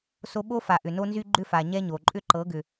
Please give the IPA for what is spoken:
so˦ ɓo˦fa˨ ʔʏ˨no˦nzy˦ ɡ͡ǃʏ˦fa˨ ɲɛ˦ɲo˨ ǃʼʏ˦ǃɤ˨˦ɡʏ˨

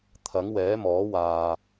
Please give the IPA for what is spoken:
t̪ʰɐ˨˥ŋwɛː˨˥mɔː˨˥waː˨

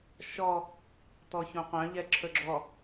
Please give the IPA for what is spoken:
ʃɔ | tɔçõqœ̃ ʎɛǁʰɵɡ͡ǁɔ

